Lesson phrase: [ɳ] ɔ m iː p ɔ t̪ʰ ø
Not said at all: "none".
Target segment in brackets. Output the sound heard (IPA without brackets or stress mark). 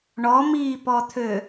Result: ɳ